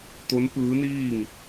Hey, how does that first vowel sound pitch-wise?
rising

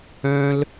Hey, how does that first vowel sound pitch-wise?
high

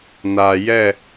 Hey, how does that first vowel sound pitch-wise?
low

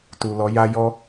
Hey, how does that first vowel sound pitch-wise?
low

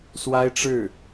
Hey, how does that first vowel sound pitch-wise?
high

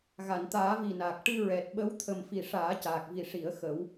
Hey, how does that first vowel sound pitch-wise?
low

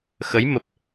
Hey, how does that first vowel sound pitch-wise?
rising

